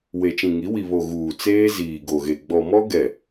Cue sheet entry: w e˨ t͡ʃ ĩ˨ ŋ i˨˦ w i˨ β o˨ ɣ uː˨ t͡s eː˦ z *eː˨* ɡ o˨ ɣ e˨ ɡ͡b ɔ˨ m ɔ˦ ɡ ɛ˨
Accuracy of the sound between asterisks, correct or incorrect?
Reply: incorrect